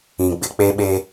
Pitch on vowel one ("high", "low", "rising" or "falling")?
low